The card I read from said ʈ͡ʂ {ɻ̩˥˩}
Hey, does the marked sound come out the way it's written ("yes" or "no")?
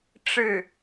yes